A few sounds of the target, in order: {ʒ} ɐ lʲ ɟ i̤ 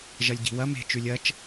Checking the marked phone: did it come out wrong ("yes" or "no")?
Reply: no